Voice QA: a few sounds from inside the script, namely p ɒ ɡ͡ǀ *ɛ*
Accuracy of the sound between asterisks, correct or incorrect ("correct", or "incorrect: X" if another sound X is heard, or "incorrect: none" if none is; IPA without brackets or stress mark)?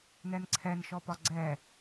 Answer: correct